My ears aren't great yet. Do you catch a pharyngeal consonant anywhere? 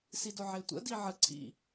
yes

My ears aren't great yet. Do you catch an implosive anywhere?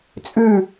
no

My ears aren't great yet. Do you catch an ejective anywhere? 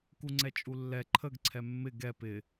yes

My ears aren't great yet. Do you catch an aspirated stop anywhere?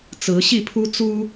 yes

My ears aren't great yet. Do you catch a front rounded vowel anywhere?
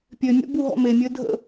yes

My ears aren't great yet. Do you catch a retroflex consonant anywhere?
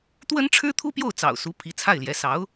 yes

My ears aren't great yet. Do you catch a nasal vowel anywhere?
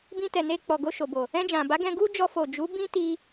yes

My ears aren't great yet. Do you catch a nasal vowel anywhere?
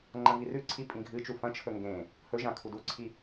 yes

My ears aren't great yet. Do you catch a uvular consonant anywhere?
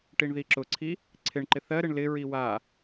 no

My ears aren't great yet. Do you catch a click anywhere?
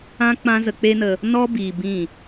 no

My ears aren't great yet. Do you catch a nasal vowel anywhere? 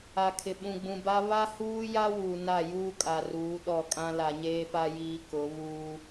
yes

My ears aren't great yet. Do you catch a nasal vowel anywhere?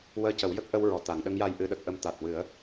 no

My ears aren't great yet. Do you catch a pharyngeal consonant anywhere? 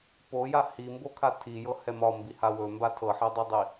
yes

